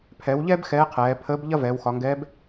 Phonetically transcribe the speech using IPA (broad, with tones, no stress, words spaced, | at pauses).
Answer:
pʰɛ˩˧wʎɛ˥b xɛː˧˥qʰɛː˩˧ pʰəː˧˥b ʎɐ˥ vɛː˩˧wxɒ˩˧ŋɡɛː˧˥b